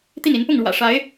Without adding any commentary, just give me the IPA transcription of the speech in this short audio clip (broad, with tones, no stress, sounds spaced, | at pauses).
t̪ i˥˩ n i˧˥ n p ʊ˥˩ ŋ ɻ w ä̰˨˩ ʂ a˧˥ ɪ̯